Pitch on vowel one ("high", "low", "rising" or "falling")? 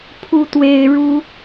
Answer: high